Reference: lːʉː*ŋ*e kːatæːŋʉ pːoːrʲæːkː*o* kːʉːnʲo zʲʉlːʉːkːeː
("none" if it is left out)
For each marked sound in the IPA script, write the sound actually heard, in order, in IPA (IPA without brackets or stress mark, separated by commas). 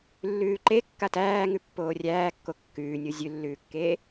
ǃ, o